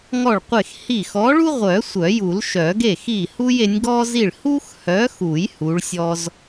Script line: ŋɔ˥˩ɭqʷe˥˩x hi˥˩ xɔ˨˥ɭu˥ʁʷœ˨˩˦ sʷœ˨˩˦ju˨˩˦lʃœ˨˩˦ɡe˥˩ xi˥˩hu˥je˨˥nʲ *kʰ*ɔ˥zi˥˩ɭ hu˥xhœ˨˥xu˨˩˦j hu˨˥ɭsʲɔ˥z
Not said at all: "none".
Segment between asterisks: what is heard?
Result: ɡ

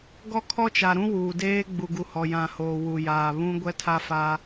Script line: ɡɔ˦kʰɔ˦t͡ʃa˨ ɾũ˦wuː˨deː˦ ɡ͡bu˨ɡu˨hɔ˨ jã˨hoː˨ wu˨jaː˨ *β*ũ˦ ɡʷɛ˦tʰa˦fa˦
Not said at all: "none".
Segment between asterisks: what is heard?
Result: β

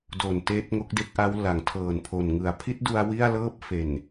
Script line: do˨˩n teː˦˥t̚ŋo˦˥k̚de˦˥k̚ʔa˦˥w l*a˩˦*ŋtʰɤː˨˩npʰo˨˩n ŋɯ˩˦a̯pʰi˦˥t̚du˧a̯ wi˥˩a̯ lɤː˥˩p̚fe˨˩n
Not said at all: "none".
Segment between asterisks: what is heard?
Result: a˩˦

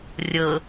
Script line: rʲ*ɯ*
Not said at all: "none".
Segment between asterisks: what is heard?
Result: ɤ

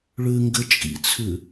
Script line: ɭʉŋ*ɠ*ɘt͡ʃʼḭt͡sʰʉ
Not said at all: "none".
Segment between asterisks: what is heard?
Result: ɡ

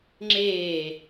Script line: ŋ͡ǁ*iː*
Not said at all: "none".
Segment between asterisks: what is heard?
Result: eː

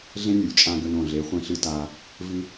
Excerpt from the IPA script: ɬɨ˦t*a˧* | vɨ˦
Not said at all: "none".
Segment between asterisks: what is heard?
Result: a˧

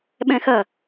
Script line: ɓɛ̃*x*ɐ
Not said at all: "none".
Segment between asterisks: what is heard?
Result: x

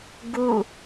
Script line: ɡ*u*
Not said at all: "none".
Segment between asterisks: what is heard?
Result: u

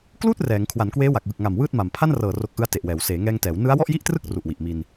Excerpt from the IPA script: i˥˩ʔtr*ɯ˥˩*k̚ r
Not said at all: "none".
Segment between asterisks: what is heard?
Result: ɯ˥˩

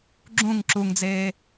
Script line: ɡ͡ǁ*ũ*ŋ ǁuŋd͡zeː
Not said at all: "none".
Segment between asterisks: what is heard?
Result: ũ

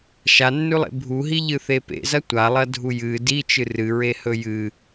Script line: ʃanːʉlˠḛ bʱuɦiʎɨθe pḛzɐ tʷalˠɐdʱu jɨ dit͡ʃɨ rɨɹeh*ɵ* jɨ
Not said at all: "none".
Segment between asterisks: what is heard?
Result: ɵ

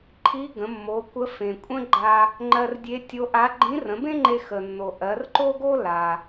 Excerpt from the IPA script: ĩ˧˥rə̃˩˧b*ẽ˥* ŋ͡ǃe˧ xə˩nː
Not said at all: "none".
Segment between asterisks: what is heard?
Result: ẽ˥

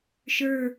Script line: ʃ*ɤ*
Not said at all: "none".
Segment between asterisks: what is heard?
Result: ə˞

